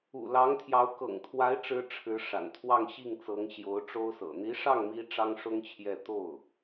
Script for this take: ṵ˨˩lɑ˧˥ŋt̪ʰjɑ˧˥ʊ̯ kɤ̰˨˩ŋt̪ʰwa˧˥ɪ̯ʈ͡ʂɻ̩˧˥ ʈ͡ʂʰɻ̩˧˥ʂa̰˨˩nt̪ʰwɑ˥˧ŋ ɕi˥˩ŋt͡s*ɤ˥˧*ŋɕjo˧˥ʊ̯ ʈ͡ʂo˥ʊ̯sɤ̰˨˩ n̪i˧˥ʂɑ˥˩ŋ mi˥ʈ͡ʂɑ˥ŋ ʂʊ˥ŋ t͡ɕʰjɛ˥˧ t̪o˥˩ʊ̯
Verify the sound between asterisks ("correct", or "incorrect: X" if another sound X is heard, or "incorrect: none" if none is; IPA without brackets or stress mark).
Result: incorrect: ɤ˧˥